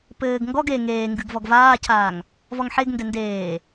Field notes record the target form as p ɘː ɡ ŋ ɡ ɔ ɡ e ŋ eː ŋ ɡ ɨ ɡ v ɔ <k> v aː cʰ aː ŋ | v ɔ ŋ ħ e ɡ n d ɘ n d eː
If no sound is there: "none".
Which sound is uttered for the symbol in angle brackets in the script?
ɡ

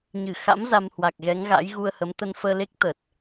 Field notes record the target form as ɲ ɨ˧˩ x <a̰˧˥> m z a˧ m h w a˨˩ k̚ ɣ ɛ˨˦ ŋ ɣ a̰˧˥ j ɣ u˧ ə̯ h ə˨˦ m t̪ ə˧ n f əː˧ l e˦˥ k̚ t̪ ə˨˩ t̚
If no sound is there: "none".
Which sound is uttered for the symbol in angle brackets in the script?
a̰˧˥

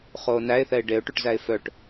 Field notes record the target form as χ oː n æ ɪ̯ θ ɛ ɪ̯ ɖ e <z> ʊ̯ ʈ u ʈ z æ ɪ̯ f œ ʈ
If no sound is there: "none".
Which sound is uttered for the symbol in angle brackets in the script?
none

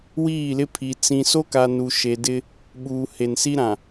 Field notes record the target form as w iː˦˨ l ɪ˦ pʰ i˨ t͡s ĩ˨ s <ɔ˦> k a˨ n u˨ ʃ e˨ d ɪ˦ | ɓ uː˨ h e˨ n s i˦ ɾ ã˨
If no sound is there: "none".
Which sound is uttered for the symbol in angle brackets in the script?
o˦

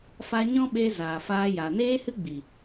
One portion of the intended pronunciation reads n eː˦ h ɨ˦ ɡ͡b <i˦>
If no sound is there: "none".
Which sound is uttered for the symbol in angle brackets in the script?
i˨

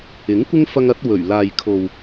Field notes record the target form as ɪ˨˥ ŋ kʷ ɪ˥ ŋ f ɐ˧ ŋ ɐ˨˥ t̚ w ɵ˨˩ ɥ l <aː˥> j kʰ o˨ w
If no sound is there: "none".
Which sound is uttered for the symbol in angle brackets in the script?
aː˨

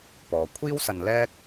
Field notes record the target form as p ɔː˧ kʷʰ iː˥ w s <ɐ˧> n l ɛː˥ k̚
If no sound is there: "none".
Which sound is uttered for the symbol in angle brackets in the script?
ɐ˧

